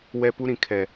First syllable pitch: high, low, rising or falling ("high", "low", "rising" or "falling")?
high